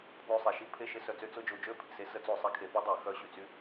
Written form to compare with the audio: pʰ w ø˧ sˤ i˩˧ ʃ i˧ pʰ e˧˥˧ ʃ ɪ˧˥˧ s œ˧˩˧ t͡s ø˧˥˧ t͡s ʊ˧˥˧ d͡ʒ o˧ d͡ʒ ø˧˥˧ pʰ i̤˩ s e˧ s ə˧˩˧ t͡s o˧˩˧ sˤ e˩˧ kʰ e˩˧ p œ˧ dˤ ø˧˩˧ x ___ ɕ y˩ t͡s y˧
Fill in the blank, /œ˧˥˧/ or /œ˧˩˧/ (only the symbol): œ˧˩˧